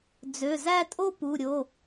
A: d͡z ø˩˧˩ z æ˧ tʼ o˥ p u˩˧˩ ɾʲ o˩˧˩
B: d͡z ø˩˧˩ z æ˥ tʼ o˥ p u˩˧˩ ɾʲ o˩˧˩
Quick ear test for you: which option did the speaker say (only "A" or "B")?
B